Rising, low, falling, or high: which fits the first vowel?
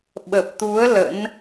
low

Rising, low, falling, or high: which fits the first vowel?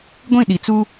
falling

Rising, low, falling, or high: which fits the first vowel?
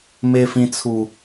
high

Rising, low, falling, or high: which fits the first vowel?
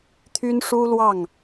high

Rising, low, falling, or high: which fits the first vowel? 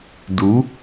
rising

